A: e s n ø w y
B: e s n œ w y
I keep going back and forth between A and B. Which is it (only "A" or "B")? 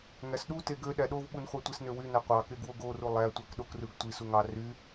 A